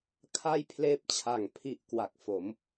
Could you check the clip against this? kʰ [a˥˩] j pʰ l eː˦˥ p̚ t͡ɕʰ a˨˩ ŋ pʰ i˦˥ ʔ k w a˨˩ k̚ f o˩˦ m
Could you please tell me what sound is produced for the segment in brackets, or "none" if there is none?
a˥˩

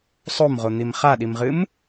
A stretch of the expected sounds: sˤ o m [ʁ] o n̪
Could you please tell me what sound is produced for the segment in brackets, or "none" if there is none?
ʁ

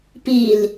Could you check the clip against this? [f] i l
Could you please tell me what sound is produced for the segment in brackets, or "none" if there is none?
p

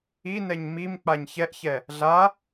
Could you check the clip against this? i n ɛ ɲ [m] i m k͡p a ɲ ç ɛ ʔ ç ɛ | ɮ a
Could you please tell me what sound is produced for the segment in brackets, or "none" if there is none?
m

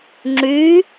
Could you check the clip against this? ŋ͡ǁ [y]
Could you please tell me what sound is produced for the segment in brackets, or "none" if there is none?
y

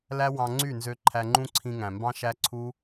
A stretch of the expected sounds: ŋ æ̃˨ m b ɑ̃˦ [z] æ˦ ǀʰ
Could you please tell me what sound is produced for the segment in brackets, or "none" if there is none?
ʃ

